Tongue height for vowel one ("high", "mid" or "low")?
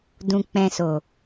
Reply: high